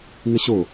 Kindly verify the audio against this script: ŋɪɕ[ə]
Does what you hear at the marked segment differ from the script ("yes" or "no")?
yes